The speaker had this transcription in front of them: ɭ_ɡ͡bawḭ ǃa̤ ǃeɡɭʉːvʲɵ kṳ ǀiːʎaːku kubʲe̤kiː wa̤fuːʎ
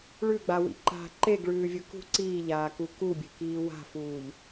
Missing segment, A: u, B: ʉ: B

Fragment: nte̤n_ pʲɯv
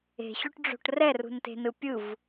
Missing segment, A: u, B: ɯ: B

